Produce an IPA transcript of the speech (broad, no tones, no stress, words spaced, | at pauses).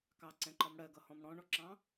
kɑ ǀɛ̃ǃɔmɽɜ ɡʌhɔ̃mɽɔ̃ ɳɔǁɑ̃